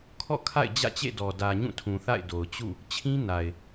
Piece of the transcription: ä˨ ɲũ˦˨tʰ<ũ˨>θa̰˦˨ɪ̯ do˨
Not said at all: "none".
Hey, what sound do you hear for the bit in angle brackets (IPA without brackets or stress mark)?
ũ˨